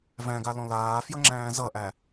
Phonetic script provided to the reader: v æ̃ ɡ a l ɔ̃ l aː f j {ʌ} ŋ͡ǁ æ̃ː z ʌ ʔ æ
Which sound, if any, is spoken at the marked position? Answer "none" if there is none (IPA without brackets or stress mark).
ʌ